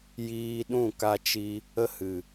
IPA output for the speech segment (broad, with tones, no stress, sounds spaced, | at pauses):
j iː˦ ɗ ũ˦˨ k a˧ t͡ʃ i˧ | ə˦ h ɨ˨